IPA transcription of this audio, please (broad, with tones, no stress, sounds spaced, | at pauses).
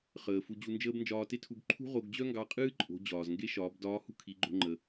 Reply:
χ əː˩ f u˧ d͡ʑ u˧ n d͡ʒ əː˥ b n d͡ʒ ɒː˧ t e˥ tʰ u˧ b ǃʰ ṳ˥ ʁ o˧ ɡ d͡ʑ œ˥ ŋ ɡ ɑ˧˥ qʼ ɨː˥ ǃʼ o̤˩˧ d͡ʑ ɒː˩ z ŋ ɡ e˧˥ ʃ ɒː˩˧ b d ɒː˧˥ h ṳ˥ kʰ i˩˧ ɡ͡ǃ o̤˧ ŋ͡ǃ ə˩